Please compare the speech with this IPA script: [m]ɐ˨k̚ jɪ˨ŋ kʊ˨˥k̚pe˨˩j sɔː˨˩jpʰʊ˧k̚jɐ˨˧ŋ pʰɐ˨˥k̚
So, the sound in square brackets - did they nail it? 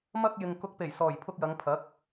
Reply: yes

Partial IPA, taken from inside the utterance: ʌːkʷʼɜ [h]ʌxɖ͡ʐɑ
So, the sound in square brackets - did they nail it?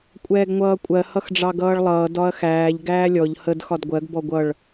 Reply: yes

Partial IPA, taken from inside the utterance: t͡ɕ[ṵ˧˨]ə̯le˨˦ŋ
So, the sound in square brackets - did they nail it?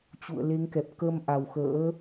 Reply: yes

